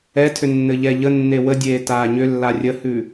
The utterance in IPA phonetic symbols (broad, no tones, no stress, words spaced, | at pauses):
ɛtʰʏ nːɘʎɛʎənːe wədʲeː taːɲʏlːa rʲəhʉ